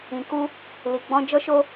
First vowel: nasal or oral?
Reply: nasal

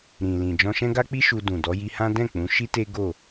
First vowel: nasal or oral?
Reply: nasal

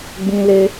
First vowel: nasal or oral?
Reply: nasal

